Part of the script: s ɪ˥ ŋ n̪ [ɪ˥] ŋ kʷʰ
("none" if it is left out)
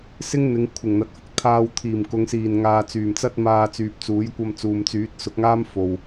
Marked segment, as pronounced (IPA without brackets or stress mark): ɪ˨˧